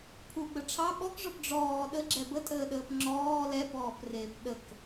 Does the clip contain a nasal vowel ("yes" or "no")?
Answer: no